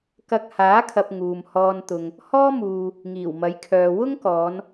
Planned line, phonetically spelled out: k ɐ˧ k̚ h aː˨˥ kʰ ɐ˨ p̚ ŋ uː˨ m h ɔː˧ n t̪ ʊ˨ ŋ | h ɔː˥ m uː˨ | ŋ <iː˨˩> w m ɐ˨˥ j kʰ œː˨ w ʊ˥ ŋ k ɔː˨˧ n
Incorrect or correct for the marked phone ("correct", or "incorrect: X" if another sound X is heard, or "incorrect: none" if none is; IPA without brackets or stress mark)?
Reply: correct